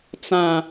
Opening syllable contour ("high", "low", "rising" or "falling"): high